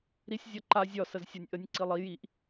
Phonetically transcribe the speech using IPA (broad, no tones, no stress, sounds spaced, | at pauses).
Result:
ɾ i sʲ zʲ ɒ ǃ a zʲ ɒ s ə z sʲ ɒ nʲ ʔ ə nʲ ǀ i lˠ i j i ʔ